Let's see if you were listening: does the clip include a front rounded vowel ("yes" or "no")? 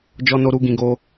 no